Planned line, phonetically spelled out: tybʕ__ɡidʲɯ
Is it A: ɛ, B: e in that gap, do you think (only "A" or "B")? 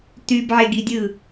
B